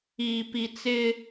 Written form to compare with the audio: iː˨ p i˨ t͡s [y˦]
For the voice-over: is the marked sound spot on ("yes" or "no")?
no